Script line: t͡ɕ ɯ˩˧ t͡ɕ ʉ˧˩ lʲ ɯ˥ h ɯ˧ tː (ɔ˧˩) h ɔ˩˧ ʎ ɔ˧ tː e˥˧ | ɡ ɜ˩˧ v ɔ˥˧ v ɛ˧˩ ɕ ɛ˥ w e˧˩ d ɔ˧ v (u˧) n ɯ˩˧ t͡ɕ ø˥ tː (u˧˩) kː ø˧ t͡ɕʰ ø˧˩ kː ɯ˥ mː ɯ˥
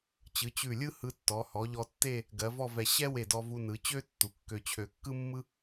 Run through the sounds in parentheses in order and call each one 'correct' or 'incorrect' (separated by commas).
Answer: incorrect, correct, incorrect